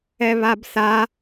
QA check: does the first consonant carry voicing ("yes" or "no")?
yes